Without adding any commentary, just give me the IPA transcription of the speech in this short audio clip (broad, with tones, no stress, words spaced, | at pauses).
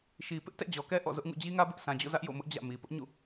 ʃi˨ pɪ˦ʔtɛ̰˦˨ d͡ʑɔ˨kɛ˦ ʔɔ̰˦˨zʊ˦ʔŋṵ˦˨ d͡ʑi˦ŋä˦bɪ˦ʔ sʰã˨d͡ʑo̰˦˨zä˦ʔ jo̰˦˨mʊ˦ʔ d͡ʑä̰˦˨ mi˨ pʊ˦ʔɲṵ˦˨